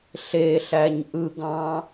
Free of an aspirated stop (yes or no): yes